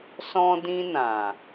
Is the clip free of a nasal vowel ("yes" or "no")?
no